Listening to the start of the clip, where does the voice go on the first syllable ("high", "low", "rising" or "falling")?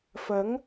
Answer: rising